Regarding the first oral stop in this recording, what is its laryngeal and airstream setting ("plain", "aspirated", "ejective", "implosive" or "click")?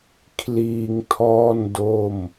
aspirated